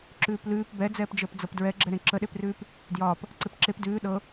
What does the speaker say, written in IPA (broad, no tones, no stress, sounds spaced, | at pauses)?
ǁ ʉː p l ʉː p b ɛ d͡z ɛː p d͡ʒ əː p d͡z ɤ p d ɹ ɛ ɡ͡ǁ ɛ ɾ ẽ ǁ ə ɗ e p r ʉː p | d j ɒː p | ǀ e p ǁ e p d ʉː ɗ ɤ